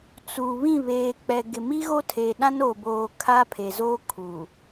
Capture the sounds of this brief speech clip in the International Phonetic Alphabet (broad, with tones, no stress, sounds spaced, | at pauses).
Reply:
t͡s u˨ β ĩ˦˨ β eː˨ k͡p ɛ˨ ɡ ɪ˨ m i˦ ɣ o˦ tʰ eː˨ ɗ ã˦ n oː˨ b oː˨ kʰ a˦ pʰ e˨ z oː˦ kʰ u˨